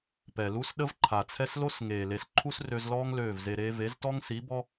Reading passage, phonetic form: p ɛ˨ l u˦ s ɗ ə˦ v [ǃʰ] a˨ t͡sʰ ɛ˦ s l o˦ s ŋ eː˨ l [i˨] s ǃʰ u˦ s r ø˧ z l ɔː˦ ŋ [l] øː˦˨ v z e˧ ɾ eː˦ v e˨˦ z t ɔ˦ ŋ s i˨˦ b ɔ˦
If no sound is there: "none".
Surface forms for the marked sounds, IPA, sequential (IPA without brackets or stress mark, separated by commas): ǃʰ, e˨, l